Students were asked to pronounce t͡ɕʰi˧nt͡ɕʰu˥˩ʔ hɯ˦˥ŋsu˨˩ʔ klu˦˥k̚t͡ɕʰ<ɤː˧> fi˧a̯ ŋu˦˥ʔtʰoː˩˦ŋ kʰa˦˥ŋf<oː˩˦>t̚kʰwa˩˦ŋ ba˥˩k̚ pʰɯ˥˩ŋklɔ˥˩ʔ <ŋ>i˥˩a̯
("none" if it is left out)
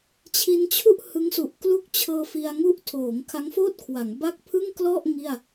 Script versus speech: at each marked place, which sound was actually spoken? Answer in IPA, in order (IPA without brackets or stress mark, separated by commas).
ɤː˧, oː˥˩, ŋ